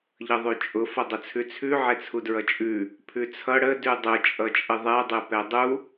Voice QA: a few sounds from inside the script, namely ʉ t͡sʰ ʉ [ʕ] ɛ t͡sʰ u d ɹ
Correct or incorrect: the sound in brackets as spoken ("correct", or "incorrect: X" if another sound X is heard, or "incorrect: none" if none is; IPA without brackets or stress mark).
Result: correct